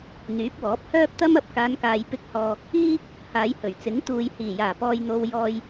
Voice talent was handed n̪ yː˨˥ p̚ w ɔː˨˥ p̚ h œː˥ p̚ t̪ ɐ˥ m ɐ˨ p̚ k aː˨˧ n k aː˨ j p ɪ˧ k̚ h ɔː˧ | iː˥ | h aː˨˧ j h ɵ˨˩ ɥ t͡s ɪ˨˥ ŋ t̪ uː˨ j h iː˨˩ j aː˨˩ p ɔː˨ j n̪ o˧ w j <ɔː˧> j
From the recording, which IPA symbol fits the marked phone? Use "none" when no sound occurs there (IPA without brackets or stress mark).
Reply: ɔː˧